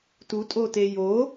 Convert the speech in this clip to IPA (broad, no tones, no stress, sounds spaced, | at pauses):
t u tʼ o t e j o